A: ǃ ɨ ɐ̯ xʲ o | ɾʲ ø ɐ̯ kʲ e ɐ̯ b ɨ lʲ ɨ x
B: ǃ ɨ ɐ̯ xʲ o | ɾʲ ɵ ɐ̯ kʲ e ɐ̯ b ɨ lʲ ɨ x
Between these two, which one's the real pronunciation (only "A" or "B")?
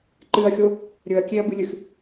B